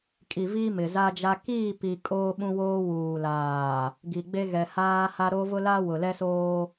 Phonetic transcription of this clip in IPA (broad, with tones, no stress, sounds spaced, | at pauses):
kʼ i˨ v iː˦ m ɪ˨ z a˦ d͡ʒ a˦ k iː˦˨ p i˨ kʼ oː˦ ɓ ũ˦ w oː˦ w uː˨ l aː˨ | ɡ i˨ ɡ͡b e˦ ɣ ɛ˨ h aː˦ h a˦ ɾ o˦ v ʊ˦ l a˦ w ʊ˨ l ɛ˦ s oː˦